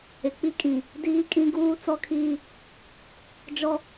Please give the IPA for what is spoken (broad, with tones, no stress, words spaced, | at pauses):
ɪ˨k͡pi˦kʼĩ˨ | diː˦kʼĩ˦ ɡuː˦ t͡sɔ˦kʰiː˦ | d͡ʒɔ˦